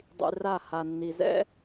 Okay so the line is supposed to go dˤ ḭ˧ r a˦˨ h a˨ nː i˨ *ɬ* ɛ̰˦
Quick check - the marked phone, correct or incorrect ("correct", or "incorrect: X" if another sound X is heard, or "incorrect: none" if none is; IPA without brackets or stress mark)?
incorrect: z